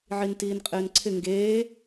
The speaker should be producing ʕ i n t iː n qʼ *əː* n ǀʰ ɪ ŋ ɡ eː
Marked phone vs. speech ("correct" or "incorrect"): incorrect